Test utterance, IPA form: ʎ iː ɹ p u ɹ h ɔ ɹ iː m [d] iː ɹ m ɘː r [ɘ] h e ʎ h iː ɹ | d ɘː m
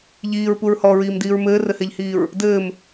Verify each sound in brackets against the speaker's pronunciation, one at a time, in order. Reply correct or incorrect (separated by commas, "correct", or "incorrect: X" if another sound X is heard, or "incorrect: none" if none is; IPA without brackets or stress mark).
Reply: correct, correct